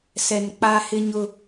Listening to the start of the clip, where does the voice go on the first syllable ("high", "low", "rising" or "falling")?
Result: low